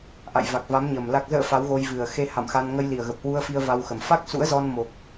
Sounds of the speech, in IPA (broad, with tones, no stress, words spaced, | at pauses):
ʔa̰˧˨jva˨˩k̚va˨˦mɲəː˨˩m la˨˩k̚zə̰ː˧˨ fa˨˦wɣo˧j vɨ˨˩ə̯ xe˧ ha̰˧˨mxa˧n ŋə˧jli˨˩ə̯ɣə˨˩p̚hwu˧ə̯ fi˧ə̯va˧wxə˨˩m fa˦˥k̚sṵ˧˥ə̯zɔ˧nmo˨˩k̚